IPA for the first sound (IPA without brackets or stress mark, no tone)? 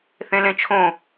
θ